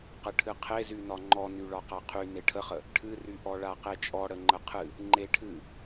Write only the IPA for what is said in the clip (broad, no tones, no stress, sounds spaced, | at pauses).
q ə ʈʰ ɨ qʰ e z y n ɒ ŋ͡ǃ ɔ n y ɭ ɒ q a qʰ y n e ʈʰ ə χ ə | ʈʰ ɨ r y ʔ ɔ ɭ a q e t͡ʃʼ ɔ ɽ ə ŋ͡ǃ ə qʰ ɨ | ŋ͡ǃ e ʈʰ ɨ